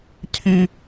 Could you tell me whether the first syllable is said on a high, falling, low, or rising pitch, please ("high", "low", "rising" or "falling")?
high